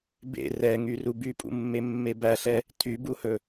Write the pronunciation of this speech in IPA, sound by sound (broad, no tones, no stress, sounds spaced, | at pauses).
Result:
b ḛ r ɛ ŋ y r u b y pʼ ṵ mː e mː e b æ ɬ ɛ | tʰ y b u h ɵ